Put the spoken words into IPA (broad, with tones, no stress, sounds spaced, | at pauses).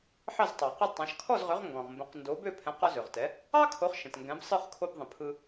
ħ ɑ˥˩ z tˤ ɑ˩ q ɯ˥˩ tˤ ɑ̃˩˥ ʃ kʰ ɔ˥˩ z ʁ ø˩˥ ʁ ŋ ɡ ɔ̃˩ ʁ m b ə̃˩˥ q n d o˩˥ b ø˥˩ pʰ ɛ̃˩˥ q ɔ˧ z ø˩ ʁ t ɛ˩˥ | ɑ˥ kʰ o˩˥ χ ʃ ə̃˩ t ŋ ɡ ɛ̃˩˥ b sˤ ɯ˥˩ χ kʰ o˧ b ðˤ ə̃˩ pʰ ɯ˧